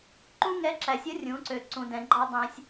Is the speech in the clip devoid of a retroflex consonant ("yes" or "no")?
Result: yes